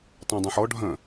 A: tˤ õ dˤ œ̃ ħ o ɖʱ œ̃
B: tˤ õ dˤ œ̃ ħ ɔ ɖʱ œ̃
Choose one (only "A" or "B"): B